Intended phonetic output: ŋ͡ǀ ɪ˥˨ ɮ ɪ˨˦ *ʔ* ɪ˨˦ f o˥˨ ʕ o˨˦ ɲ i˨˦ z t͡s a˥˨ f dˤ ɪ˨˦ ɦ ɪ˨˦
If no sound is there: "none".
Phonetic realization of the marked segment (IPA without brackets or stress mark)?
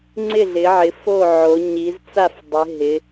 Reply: ʕ